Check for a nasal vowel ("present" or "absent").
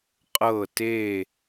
absent